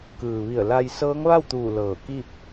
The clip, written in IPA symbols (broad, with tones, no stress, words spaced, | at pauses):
kɯː˩ʋi˧˩ə̯ la˧j sɤː˧˥ŋʋa˥˨wt̪uː˧˩ lɤː˧˩ki˥˨p̚